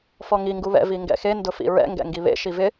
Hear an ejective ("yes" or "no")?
no